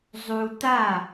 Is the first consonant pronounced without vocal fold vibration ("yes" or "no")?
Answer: no